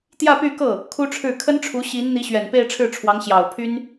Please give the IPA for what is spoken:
t̪ j ä˥˧ p y˥˧ k ɤ˥˩ | kʰ u˥ ʈ͡ʂʰ ɻ̩˥˩ kʰ ə˥ n ʈ͡ʂʰ u˧˥ ɕ i˧˥ n n̪ i˧˥ ɕ ɥ ɛ˨˩ n p e˥˧ ɪ̯ ʈ͡ʂʰ ɻ̩˥˩ ʈ͡ʂʰ w ɑ˧˥ ŋ ɕ j ɑ˨˩ ʊ̯ pʰ y˥ n

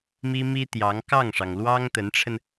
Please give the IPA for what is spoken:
m i˥ m i˥ t̪ j ɑ˧˥ ŋ k ɑ˥˩ ŋ ʂ ɑ˩ ŋ l w ɑ˥ ŋ t̪ ə˧˥ n ʈ͡ʂʰ ə˧ n

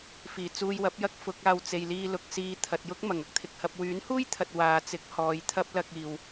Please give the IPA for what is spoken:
f iː˨˩ t͡s uː˧ j w ɐ˨˥ p̚ j ɐ˥ k̚ f ʊ˨˥ k̚ aː˧ w t͡s e˨ j l iː˧ l ʊ˨ k̚ s iː˨˧ t̪ʰ ɐ˨ t̚ j ʊ˥ k̚ m ɐ˨˩ ŋ ɐ˥ k̚ t̪ʰ ɪ˨ k̚ h ɐ˧ p̚ w yː˨˥ n h uː˥ j t̪ʰ ɐ˨ t̚ w aː˨ t͡s ɪ˨˥ k̚ h ɔː˨ j t̪ʰ ɐ˥ p̚ l ɐ˧ k̚ iː˨ w

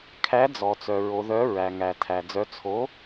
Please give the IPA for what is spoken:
kʰ æ˨˥ d͡z ɔ˩ t͡s œ˩ ɹ o˩˧ ð œ˨˥ ɹ æ˩ ŋ æ˩ tʰ æ˩ d͡z œ˨˥ t͡sʰ o˨˥

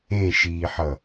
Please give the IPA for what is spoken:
ẽ ʃ iː ħ ʌ

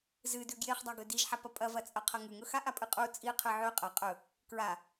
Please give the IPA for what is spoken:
z ɨ d ʉ ɡ j e χ dˤ a ɡ ɵ d i ʒ ħ a p ɐ pʼ ɐ v ɐ t͡sʼ ɐ qʰ ɐ ŋ ʉ ŋ ɵ x a ʔ a pʼ ɨ qʼ u t͡sʼ i qʰ ɨ ʕ ʉ qʼ ɐ qʼ ɵ | k ɹ a

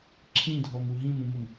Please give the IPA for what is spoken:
ǁʰ ĩ dʱ ɔ m u ɦ ĩ m ũ m ʊ m

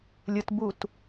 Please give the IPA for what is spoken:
lʲ ɯ t b u t

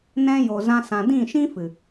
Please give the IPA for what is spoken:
n ɛ̃˧ j o˨ z ã˧ s ã˨ d ĩ˦˨ ʃ ĩ˦ f ɨ˨

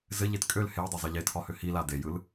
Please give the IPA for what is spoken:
z ɘ ʎ e t kʼ ø l h e j dˤ a zˤ i ʎ e tʰ ɒ h ø h i l a d e j ɯ l

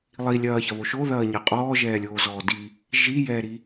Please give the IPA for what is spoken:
lˠ i lʲ ɐː ç ɐ β o ʃ o ð ɐː ɲ ɐ qʼ ɔː ʒ ɛː lʲ oː z ɔː d i | ʒ i j ɛː ɾ i

